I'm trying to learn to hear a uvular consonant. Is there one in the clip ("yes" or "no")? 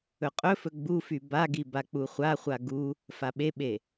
yes